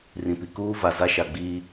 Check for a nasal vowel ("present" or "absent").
present